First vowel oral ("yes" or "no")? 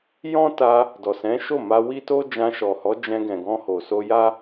no